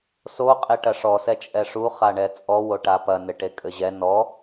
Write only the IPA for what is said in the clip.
s o qʼ e ʈ ɐ ʂ ɔ s ɛ t͡ʃʼ ɛ ʂ u χ a ɳ ɛ t͡sʼ ɔ w o ʈ a p ɐ n ɘ ʈ e kʼ ɘ ʑ ɛ n ɔ

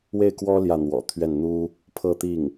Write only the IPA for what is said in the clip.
w e˥˩ ɪ̯ k w ɔ˥ l j ä˥˩ n̪ w ɔ̰˨˩ t̪ʰ ɥ ɛ˥˩ n n̪ u˥ | pʰ ɤ˥˧ t̪ i˥˩ ŋ

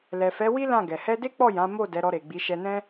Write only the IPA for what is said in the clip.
l ɛ˨ f ɛ˨˦ w i˦ l ã˦˨ ɡ ɛ˨ h ɛ˧ d e˦ k͡p ɔ˦˨ j ã˨˦ m o˦˨ d ɛ˨˦ ɾ ɔ˧ ɾ e˨ ɡ͡b i˨˦ ʃ ɛ˧ n ɛ̃˦

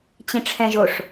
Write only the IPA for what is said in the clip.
t͡ɕ ĩ ʈ͡ʂʰ ɛ̃ ʒ o ʂ

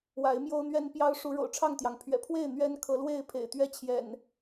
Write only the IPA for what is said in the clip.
w a˨˦ ɪ̯ m j o˦ ʊ̯ n̪ ɥ ɛ˦ n p j ɑ˦ ʊ̯ ʂ u˨˦ ɻ o̰˨˩ ʊ̯ ʈ͡ʂʰ ɑ˥˨ ŋ t̪ j ɑ˩ ŋ pʰ ɥ ɛ̰˨˩ pʰ w e˥˨ ɪ̯ n̪ ɥ ɛ˦ n kʰ ɤ˨˦ l w e˥˨ ɪ̯ pʰ ḛ˨˩ ɪ̯ t̪ ɥ ɛ˦ t͡ɕʰ j ɛ̰˨˩ n

